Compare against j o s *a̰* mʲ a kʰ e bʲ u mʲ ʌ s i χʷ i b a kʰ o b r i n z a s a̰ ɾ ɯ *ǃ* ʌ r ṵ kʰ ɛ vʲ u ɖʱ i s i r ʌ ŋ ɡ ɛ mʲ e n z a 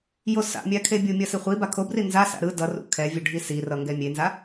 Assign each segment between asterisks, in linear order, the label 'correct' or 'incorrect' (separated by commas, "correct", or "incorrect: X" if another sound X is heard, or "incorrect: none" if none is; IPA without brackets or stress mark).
correct, incorrect: d